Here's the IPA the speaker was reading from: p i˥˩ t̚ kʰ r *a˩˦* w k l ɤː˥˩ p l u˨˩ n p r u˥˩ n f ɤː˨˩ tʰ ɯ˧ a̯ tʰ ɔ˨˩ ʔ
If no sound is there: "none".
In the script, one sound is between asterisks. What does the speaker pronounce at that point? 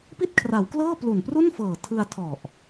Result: a˩˦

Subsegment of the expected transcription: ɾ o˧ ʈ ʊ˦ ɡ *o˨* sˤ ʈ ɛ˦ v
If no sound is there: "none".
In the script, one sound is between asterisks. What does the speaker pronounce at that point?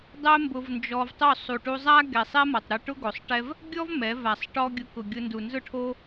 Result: o˨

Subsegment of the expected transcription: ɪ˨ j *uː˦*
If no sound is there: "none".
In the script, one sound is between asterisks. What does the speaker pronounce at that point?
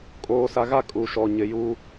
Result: uː˦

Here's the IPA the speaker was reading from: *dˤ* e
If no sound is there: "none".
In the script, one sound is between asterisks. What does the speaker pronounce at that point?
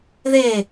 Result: ð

